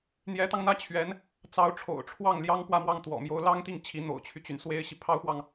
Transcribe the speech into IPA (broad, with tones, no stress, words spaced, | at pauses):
n̪jɛ˧˥t̪ɑ˧ŋn̪ä˥˩ t͡ɕʰɥɛ˧˥n | t͡sɑ˧˥ʊ̯ʈ͡ʂʰo̰˨˩ʊ̯ʈ͡ʂʰwɑ˥˩ŋ ljɑ˥ŋpwä˥˧mwɑ˥˩ŋ t̪wɔ̰˨˩ mjo˧˥ʊ̯lɑ˥ŋt̪i˥˩ŋt͡ɕʰi˧˥ n̪o̰˨˩ʊ̯t͡ɕʰy˦t͡ɕy˩n swe˥ɪ̯ɕi˨ pʰɑ˥ʊ̯xwɑ˨ŋ